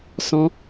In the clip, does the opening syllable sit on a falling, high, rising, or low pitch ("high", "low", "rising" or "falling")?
high